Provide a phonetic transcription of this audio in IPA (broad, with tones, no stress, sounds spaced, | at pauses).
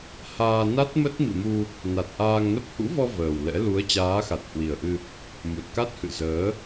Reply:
h aː˧ n a˦˥ t̚ m ə˦˥ t̚ m ḭ˧˨ m u˧ | n a˨˩ t̚ ʔ aː˧ ŋ n ə˦˥ p̚ h ṵ˧˥ v ɔ˧ v əː˨˩ w l ɛ̰˧˥ l u˨˦ ə̯ t͡ɕ aː˨˦ x a˨˩ t̚ h w i˨˩ ə̯ ʔ ɨ˧ | m u˨˩ t̚ k a˦˥ t̚ h ɨ̰˧˨ z əː˨˦